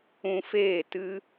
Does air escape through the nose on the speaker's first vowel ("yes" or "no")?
yes